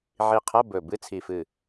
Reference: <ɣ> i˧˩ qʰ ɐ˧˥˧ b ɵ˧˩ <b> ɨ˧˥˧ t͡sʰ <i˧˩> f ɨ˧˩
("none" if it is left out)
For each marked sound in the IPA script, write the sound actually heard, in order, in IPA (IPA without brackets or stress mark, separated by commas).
ʕ, b, i˧˩